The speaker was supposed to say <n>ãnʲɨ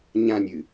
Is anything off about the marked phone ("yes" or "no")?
yes